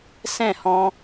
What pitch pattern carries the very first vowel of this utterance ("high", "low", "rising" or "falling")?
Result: falling